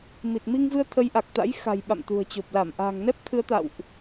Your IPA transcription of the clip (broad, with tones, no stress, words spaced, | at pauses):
mi˨˩t̚mi˧ŋvɨ˧ə̯ t̪ʰə˨˦jʔa˨˩k̚t̪a̰˧˥j xa̤˨˩j ɓa̰˧˨mt̪ṳ˨˩ə̯t͡ɕo˨˩p̚ la˧˩mʔa̤ː˨˩ŋ nɛ˦˥p̚t̪ʰɨ˨˦ə̯t̪a̰˧˨wʔ